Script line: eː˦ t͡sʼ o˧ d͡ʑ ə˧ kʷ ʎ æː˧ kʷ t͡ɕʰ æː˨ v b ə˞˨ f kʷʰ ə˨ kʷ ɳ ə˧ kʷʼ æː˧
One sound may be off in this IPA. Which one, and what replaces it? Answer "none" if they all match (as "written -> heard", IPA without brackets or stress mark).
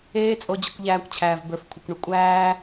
none